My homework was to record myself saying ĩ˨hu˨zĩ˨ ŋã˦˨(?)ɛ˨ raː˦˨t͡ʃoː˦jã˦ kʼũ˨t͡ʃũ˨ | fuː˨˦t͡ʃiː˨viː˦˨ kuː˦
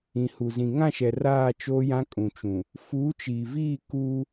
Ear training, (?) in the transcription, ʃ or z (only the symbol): ʃ